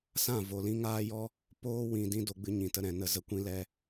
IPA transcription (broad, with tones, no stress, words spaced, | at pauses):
sã˦˨ vo˨lĩ˧ŋaː˦jɔ˦ | poː˦wĩ˨ dĩ˦ do˧ɡ͡bɨ˧ ɲĩ˨tə˧ɾɛ̃˨nə˨ zə˨kʷĩ˧lɛ˧